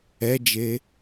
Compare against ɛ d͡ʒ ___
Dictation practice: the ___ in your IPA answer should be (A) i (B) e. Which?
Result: B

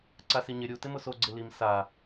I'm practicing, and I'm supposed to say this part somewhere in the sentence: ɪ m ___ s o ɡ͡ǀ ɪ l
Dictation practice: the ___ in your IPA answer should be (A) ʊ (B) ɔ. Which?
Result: A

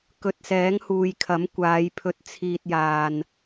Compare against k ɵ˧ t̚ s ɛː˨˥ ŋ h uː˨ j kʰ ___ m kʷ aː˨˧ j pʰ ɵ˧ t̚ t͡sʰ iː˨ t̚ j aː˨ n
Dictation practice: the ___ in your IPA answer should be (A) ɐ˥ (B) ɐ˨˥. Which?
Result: B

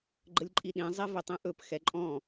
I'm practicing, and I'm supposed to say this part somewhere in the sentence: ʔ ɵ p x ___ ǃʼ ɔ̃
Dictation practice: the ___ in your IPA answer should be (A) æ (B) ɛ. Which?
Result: B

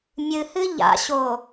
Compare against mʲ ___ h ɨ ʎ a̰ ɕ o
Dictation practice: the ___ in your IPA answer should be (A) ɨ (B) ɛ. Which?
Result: A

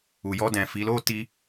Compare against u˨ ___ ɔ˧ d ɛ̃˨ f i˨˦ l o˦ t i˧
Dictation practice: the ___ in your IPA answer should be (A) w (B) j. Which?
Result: B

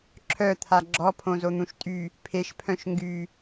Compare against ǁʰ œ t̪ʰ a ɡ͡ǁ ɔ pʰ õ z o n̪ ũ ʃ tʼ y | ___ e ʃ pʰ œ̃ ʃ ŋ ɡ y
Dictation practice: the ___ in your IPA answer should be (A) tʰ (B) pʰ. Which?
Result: B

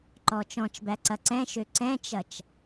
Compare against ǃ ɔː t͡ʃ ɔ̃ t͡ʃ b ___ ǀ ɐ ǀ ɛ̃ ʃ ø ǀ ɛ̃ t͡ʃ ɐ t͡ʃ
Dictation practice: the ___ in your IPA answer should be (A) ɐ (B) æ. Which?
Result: B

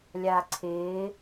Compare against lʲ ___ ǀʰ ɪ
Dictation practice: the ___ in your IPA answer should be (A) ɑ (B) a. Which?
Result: B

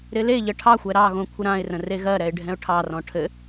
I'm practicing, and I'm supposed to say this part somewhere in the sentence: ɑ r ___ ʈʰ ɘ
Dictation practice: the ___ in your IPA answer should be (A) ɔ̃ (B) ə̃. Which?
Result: A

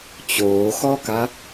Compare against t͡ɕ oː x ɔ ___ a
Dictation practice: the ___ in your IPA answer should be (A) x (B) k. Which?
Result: B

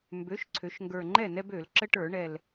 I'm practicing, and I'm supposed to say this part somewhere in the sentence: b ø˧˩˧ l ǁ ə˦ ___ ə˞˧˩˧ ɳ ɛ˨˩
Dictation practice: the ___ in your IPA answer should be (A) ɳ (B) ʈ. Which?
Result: B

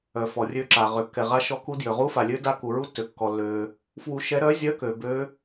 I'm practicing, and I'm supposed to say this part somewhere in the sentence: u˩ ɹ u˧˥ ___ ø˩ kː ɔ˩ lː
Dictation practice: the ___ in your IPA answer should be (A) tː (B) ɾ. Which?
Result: A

